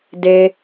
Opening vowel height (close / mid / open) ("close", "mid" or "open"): mid